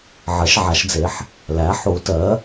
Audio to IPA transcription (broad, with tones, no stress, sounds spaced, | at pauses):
ʕ ɜ˩˧ ʃ ʕ a˩˧ ʃ d͡z e˩˧ ħ | l æ˩˥ ħ u˩˧ t ɜ˩˥